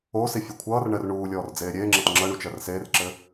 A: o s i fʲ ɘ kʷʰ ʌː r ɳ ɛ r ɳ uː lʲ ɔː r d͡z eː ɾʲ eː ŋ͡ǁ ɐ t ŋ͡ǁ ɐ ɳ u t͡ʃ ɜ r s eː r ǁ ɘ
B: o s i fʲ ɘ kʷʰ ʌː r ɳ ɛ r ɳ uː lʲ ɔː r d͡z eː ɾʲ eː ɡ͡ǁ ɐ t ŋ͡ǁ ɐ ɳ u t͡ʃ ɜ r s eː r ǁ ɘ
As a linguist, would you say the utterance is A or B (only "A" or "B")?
A